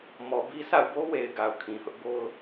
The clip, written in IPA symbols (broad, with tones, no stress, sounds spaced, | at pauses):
m ɔ˨ b i˦ s a̰˦˨ ʊ̯ b o˦ w e˨ ɪ̯ ɡ a˨ ʊ̯ kʰ ĩ˨ h ʊ˦ ʔ b o˦ ʊ̯